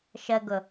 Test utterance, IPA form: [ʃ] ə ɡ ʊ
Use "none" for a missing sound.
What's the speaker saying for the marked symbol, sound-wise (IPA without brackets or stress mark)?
ʃ